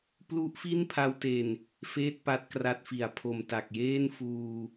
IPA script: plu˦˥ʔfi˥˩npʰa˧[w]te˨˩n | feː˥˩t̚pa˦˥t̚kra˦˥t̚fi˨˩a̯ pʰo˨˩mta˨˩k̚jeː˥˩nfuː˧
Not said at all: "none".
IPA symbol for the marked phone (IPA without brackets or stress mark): w